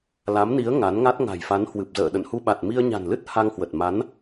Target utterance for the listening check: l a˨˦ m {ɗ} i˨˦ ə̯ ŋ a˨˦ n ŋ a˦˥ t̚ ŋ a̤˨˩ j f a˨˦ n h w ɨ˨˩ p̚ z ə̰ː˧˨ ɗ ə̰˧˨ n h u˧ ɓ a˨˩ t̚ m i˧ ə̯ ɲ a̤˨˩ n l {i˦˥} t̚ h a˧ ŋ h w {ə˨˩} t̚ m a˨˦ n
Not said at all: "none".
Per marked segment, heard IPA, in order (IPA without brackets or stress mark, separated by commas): n, ɨ˦˥, ə˨˩